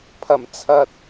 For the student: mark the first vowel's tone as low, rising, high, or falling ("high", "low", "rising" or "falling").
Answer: low